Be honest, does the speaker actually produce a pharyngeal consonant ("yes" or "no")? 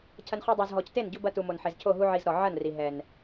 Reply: yes